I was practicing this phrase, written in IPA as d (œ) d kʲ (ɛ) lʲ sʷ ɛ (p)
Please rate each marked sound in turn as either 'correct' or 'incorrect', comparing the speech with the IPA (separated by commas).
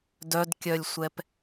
correct, incorrect, correct